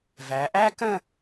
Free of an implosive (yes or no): yes